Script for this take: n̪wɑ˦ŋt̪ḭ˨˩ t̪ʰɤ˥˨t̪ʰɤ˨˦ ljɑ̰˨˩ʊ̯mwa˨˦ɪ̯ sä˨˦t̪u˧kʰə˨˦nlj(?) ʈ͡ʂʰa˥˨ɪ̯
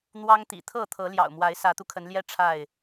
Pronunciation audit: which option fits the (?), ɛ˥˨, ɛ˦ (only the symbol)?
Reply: ɛ˦